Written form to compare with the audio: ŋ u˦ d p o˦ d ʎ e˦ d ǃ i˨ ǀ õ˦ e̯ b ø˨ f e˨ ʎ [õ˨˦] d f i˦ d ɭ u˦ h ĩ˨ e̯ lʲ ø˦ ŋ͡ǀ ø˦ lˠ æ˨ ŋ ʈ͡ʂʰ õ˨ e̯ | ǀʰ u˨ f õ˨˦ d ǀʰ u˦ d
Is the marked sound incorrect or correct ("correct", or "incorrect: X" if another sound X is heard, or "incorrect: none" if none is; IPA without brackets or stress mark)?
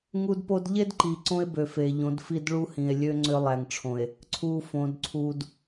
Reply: correct